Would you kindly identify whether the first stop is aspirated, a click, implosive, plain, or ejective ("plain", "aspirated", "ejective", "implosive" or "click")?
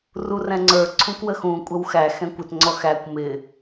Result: click